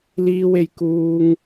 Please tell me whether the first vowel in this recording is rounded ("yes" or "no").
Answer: no